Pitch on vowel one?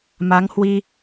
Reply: rising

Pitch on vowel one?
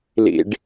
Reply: high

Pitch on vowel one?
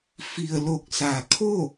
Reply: low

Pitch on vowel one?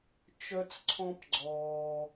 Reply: high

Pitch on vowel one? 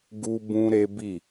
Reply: high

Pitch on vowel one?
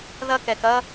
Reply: high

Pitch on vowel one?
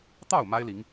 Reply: falling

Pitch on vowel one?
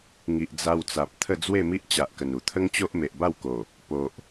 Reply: low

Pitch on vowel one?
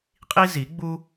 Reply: high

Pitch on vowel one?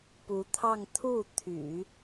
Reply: rising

